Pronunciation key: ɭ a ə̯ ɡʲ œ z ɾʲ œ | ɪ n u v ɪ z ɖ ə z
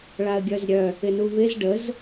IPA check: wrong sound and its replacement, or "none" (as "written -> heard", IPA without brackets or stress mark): none